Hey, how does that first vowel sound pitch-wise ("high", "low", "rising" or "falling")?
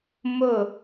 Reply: falling